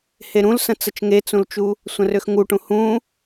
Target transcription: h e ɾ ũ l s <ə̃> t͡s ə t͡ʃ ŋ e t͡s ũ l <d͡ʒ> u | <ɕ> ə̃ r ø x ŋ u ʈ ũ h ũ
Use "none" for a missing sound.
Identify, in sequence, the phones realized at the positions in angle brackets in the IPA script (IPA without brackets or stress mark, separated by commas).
ə̃, t͡ʃ, sʷ